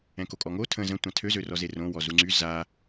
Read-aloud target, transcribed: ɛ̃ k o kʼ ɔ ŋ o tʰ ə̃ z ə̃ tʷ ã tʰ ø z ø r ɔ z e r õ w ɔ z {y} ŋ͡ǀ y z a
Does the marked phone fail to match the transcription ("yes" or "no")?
yes